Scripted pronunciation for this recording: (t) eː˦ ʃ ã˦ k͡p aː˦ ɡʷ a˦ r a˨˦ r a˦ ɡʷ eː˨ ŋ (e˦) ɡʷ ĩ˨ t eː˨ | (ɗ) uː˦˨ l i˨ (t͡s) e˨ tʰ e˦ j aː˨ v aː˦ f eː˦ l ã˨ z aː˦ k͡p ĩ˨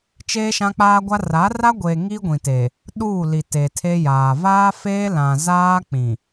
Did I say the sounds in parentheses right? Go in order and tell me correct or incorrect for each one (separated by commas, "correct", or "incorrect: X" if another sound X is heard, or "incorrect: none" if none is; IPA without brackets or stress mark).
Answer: incorrect: t͡ʃ, incorrect: i˦, correct, incorrect: t